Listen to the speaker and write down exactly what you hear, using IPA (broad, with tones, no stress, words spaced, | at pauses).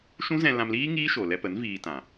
ʃũ˦zɛ̃˧lã˧mliː˦ ŋiː˦ʃo˨lɛ˧pə˨˦n viː˧tã˨